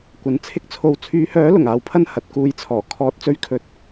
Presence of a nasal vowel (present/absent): absent